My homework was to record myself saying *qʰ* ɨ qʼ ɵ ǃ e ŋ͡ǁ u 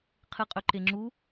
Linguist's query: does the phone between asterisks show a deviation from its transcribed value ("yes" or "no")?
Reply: no